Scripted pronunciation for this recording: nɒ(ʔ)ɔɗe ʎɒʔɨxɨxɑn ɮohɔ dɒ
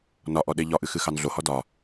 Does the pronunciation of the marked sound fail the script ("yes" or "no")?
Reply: no